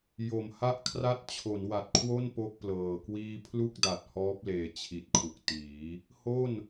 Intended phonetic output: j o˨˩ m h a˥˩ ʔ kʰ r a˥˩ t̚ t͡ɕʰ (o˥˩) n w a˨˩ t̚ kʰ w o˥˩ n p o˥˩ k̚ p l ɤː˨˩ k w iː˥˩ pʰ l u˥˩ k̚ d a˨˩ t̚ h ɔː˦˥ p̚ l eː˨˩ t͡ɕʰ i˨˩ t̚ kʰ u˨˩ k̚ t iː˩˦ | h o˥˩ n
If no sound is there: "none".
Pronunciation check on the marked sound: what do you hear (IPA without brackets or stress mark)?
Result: o˩˦